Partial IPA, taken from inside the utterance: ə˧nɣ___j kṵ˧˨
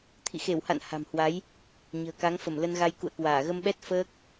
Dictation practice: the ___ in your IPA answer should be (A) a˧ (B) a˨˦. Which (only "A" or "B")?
A